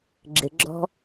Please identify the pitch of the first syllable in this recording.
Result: low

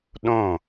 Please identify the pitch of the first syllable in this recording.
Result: falling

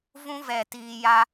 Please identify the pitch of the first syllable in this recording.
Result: high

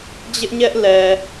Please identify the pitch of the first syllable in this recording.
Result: high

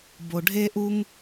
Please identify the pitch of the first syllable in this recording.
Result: low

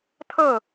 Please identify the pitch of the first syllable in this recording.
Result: falling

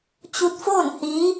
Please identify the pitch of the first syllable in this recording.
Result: rising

